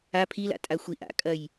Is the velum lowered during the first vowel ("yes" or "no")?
no